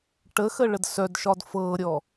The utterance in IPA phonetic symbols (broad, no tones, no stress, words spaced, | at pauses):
ʈəxəɭəd sœdʃɒd fɤɾʲɔ